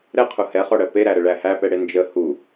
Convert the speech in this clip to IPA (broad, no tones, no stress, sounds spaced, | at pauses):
ɾ ɛ qʰ u h ɛ χ ɔ ɽ ɜ p e ɾ æ ɾ ə ɭ æ h æ p ɛ ɽ e n d͡ʒ ə h u